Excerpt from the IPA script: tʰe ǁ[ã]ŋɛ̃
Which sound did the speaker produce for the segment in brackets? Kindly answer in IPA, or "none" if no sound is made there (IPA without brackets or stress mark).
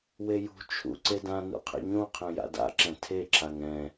a